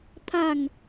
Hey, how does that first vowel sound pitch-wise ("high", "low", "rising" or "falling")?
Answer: falling